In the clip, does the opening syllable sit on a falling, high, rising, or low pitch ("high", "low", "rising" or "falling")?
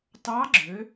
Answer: rising